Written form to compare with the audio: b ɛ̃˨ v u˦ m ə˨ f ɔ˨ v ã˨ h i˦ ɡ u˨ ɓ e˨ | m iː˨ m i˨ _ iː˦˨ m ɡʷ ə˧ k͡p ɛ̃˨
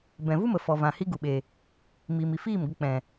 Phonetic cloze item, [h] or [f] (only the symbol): f